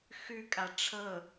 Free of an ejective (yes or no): no